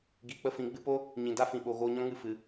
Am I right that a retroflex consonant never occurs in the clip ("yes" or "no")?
yes